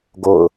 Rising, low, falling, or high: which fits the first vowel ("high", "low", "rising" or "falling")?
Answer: falling